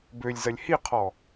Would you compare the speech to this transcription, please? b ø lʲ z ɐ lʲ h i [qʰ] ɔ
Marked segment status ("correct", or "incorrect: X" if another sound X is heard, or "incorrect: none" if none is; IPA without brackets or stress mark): correct